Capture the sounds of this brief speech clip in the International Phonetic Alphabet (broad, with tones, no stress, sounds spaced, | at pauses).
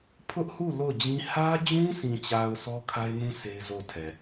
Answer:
pʰ ʊ˦ ʔ h u˦˨ l o˦˨ ʊ̯ d͡ʑ ĩ˦ h ä˦ d͡ʑ ũ˦ sʰ ĩ˨ t͡ɕ a˨ ʊ̯ s ɔ˦ kʰ a˦ ɪ̯ n ũ˦ sʰ e˦ ɪ̯ z o˦˨ ʊ̯ tʰ ɛ˨